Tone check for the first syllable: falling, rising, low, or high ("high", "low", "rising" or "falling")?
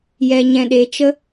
low